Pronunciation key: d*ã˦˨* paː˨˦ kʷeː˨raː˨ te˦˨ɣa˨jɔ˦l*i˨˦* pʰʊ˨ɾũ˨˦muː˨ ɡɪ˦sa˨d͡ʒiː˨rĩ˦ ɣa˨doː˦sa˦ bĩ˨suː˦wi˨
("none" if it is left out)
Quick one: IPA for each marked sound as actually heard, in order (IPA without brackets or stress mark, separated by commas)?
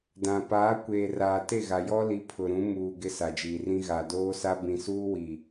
ã˨, i˨˦